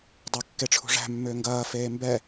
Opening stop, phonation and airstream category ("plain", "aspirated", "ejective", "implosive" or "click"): plain